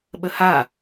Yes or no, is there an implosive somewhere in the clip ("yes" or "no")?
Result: yes